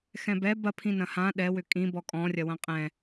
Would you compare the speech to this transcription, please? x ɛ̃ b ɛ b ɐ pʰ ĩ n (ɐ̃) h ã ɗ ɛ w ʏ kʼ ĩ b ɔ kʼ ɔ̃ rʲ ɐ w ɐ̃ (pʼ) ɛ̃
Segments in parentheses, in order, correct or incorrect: correct, incorrect: qʼ

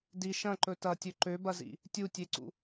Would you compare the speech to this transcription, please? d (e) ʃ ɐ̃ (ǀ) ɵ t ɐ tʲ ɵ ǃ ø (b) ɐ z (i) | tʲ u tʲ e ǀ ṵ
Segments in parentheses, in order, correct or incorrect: incorrect: i, incorrect: ǃ, correct, incorrect: ḭ

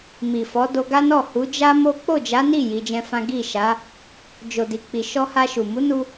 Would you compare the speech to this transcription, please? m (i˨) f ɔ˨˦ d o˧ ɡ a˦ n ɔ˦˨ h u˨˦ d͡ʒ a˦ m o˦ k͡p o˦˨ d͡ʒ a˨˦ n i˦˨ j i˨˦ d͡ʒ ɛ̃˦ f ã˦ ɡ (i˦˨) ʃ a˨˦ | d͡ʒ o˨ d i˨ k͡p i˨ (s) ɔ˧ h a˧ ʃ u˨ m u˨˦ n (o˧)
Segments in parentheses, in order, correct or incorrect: correct, correct, incorrect: ʃ, incorrect: u˧

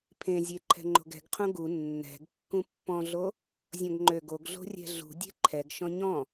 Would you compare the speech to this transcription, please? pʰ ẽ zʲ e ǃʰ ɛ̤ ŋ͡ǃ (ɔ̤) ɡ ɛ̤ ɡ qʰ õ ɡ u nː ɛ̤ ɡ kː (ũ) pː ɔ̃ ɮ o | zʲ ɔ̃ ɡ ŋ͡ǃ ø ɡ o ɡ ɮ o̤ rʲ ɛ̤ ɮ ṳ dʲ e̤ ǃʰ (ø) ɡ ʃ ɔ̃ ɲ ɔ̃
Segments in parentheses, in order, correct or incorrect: incorrect: o̤, correct, incorrect: ɛ

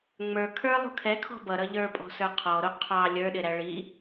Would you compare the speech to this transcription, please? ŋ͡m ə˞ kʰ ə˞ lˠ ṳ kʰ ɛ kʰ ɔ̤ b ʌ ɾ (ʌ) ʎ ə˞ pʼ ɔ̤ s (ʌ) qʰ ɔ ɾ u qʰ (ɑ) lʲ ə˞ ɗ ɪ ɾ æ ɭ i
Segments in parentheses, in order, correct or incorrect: correct, incorrect: ə˞, correct

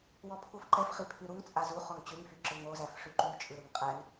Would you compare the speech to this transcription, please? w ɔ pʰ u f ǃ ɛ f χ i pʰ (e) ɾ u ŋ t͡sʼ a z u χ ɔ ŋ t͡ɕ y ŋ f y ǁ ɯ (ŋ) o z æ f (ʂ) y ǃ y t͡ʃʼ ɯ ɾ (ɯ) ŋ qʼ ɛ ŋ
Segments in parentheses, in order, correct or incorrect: incorrect: y, correct, correct, correct

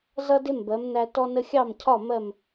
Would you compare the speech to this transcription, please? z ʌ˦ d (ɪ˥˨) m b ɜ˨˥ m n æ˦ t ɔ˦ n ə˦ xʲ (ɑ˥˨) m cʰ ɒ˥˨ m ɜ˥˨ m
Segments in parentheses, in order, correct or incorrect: incorrect: ɪ˦, correct

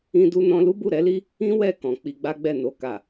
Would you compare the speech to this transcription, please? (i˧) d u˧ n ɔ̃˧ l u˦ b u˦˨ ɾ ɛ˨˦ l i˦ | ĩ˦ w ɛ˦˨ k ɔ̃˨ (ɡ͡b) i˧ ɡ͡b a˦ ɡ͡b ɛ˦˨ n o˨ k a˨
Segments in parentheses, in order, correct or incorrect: incorrect: ĩ˧, incorrect: k͡p

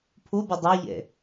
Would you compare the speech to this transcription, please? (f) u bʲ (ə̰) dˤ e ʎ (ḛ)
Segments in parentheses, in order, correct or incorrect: incorrect: pʰ, incorrect: ə, correct

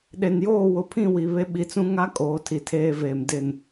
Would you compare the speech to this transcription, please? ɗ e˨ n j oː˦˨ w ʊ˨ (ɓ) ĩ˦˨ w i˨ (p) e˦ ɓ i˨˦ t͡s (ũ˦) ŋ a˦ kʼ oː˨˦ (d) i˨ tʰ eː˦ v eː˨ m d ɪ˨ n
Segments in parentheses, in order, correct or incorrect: incorrect: pʰ, incorrect: β, correct, incorrect: tʰ

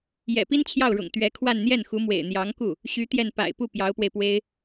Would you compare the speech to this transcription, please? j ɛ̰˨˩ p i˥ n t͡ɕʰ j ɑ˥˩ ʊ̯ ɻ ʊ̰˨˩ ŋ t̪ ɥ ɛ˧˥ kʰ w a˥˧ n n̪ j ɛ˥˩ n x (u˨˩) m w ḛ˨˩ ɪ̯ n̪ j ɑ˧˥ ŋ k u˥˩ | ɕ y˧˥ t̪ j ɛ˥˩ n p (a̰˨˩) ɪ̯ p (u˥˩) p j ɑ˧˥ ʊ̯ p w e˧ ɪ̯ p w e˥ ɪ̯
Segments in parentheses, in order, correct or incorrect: incorrect: u˧˥, correct, correct

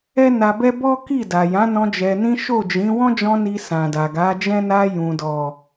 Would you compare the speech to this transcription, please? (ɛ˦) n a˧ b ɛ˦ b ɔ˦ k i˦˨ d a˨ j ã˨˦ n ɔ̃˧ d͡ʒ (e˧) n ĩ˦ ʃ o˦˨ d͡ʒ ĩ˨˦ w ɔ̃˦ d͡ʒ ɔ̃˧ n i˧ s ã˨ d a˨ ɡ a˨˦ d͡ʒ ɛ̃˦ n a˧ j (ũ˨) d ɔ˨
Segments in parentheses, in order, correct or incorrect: correct, incorrect: ɛ˧, correct

